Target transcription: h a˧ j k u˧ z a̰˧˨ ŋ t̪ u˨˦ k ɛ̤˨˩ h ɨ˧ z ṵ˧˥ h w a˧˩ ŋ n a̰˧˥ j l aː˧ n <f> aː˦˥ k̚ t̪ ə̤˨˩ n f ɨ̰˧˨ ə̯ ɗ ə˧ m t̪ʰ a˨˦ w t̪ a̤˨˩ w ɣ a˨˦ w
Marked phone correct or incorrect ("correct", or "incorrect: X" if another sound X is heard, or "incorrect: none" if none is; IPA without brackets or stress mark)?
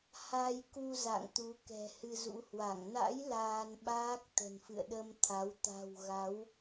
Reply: incorrect: ɓ